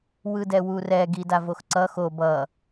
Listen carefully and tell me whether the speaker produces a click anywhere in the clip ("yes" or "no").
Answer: yes